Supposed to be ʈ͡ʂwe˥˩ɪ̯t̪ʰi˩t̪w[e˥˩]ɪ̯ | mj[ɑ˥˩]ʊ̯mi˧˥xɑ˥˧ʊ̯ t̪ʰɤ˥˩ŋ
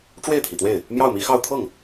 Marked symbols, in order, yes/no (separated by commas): yes, yes